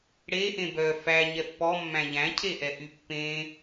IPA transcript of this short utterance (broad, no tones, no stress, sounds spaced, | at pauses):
ɽ e ʔ ẽ b œ f æ ɲ ɛ pː ɔ mː æ̃ ʎ æ̃ cʰ e ʔ ɛ ʔ y pː ẽ